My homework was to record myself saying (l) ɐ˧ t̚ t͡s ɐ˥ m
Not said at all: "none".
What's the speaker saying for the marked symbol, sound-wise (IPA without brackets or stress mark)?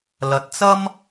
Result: l